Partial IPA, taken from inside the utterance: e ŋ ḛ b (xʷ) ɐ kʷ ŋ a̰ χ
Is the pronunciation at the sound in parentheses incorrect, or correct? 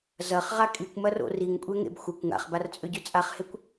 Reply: correct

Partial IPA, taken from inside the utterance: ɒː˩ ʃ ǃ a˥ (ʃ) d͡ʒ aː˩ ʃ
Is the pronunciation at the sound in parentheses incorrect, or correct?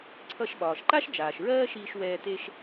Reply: correct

